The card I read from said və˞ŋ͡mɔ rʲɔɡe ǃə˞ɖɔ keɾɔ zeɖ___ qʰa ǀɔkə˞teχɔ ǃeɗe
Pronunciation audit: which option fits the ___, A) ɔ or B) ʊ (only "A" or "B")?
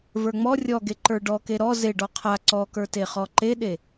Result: A